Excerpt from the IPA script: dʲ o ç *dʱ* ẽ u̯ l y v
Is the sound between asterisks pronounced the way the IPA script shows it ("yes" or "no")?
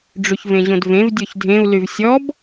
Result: yes